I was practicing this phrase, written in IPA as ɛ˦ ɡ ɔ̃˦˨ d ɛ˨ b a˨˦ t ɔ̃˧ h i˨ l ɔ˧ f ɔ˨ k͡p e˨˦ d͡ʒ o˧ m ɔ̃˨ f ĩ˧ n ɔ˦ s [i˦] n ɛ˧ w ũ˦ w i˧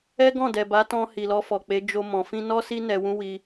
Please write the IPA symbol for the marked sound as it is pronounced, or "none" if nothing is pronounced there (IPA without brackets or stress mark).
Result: i˦